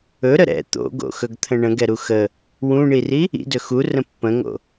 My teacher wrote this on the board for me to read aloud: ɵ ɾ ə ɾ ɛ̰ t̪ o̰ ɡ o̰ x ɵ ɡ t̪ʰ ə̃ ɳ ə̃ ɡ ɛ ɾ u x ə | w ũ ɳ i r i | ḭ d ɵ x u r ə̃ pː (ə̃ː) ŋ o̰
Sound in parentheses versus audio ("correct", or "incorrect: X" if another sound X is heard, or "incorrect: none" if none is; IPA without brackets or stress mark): incorrect: ə̃